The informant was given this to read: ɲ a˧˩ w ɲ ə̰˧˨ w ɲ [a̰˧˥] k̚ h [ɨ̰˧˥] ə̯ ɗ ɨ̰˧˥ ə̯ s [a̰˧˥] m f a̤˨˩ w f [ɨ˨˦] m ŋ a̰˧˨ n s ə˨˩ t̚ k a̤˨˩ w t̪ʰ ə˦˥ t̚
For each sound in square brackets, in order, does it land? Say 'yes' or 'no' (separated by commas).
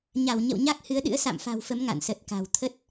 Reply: no, no, no, no